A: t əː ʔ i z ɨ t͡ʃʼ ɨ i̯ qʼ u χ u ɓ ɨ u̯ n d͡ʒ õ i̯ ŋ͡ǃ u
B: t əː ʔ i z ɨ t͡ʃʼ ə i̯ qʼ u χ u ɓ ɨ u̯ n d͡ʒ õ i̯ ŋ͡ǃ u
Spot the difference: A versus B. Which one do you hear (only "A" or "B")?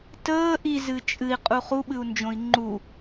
A